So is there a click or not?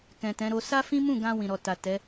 no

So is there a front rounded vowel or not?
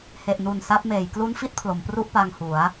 no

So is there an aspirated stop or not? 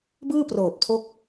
yes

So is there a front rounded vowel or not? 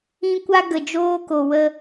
no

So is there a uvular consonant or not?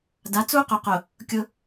yes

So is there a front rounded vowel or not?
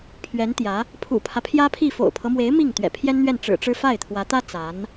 no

